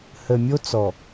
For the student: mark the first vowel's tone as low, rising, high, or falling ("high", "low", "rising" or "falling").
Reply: low